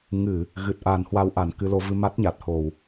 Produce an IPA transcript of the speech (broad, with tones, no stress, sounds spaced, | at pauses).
ŋ ɨ˧˩˨ | ɣ ɨ˨˩ t̚ ʔ a˨˩ n h w a˧ w ʔ a˧˩ n k ɨ˧ l o˨˦ v ɨ˧ m a˦˥ t̚ ɲ a˨˩ t̚ h o˧˩˨ w